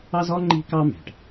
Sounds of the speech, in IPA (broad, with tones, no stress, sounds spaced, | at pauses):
ɑ˥ z ɔ˥ ŋ͡ǃ i̤˥ k ɑ˥ m æ̤˩ ʈ